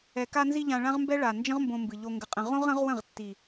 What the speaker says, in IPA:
ɛ˨ k a˧ n z i˧ ʎ ã˧ ɭ ã˦ ʁ m b ɛ˦ ɭ a˨ n d͡ʒ ə̃˦ ʁ m b õ˧ m b ɨ˨ ʎ o˨ ŋ ɡ ə˨ qʼ ə̃˨ ʁ õ˦ ʁ ə̃˨˦ ʁ w ə̃˦˨ ʁ tː i˨

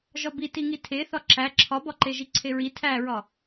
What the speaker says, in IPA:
ʒ ɒ b i t i ŋ i tʰ e θ ɒ ǁ æ ǁʰ ɒ b ɒ ǃ e ʒ i ǀʰ e ɹ i tʰ æ ɹ ɒ

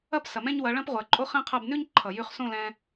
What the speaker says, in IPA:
ɐ˦ p s ɐ˨ m ɛ̃˦ ɲ w ɐ˨˦ ɭ ɐ̃˦ p ʁʷ ɜ˨ ǃʼ o˦ χ ɛ̃˦ qʰ ɐ˦˨ b n ʉ˦ ɲ ǃʰ ʌ˨ j ʉ˦˨ χ s õ˦˨ l ɛ̃˧

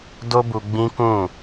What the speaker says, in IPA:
d o˦ b u˧ ɡ͡b ĩ˦ k ũ˦˨

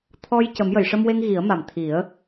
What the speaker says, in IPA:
t̪ʰ ɔ˧ j c ə˨˩˦ m j ə˨˩˨ j ʂ ə˧ m w e˧ ŋ ɣ i˨˩˦ ə̯ m a˨˩ m t̪ʰ i˨˩˦ ə̯

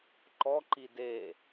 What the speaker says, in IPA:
ǃ ɔ ǃ i d e

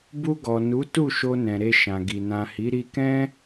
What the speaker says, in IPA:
b u˧ ɡ ɔ˨ n u˨˦ t u˦˨ ʃ o˧ n ɛ̃˨ ɾ e˧ ʃ ã˨ ɡ i˨ n ã˨ h i˨˦ ɾ i˧ k ɛ̃˦

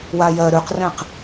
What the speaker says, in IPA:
w a j ɜ ɾ ʉ q r ɛ̃ q

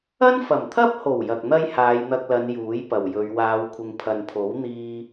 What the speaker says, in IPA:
ɐ˥ n f ɐ˨˩ m t̪ʰ ɐ˥ p̚ h o˨˩ w j ɐ˨ k̚ n̪ ɐ˥ j h aː˨˧ j n̪ ɐ˧ k̚ l ɐ˨˧ n j uː˨˥ j p ɐ˨˩ w j ɵ˨˧ ɥ w aː˨˧ w kʷʰ ɪ˨ ŋ pʰ ɐ˨ n pʰ o˨˥ w n̪ iː˥

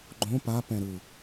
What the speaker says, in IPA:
ɡ͡ǃ õ p a p ɛ̃ ɾ ɯ

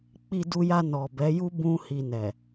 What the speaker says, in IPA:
k͡p i˧ d u˧ j a˧ n ɔ˨ b ɛ˨˦ j u˦ b ũ˦ h i˧ n ɛ˨

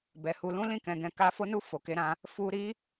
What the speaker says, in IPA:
b ɛ˨ h u˧ l ũ˦ l ĩ˦˨ k ɛ̃˧ ɡ ɛ̃˧ k a˦ f o˦ n u˦ f o˧ k e˦ ɾ ã˦ | f u˧ ɾ i˦

